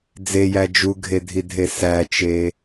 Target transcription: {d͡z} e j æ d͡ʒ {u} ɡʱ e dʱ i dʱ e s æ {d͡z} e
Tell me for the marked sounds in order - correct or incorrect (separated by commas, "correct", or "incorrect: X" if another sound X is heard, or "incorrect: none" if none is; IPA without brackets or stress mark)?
correct, correct, incorrect: t͡ʃ